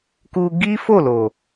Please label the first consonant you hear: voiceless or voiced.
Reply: voiceless